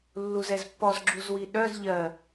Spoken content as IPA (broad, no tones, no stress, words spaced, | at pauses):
lːuzɛzpːɔz ɡ͡ǁuzwiɗœz ʎɜ